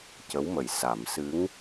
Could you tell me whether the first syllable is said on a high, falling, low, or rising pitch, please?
rising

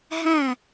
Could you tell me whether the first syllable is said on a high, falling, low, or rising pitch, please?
falling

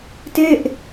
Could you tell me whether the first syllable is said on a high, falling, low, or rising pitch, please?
falling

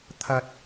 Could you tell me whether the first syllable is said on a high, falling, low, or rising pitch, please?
high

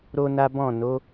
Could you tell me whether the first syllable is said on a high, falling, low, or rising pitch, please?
high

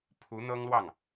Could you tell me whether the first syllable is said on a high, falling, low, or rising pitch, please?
rising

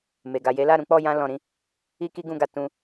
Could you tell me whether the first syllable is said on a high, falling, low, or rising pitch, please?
low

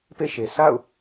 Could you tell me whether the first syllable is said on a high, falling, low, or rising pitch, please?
falling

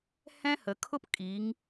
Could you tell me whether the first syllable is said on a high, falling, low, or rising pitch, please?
high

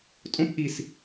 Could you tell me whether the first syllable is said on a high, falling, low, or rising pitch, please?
high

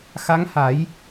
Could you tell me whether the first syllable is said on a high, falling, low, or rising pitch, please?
rising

